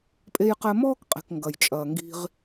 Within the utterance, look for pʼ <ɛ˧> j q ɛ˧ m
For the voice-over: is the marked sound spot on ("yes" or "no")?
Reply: no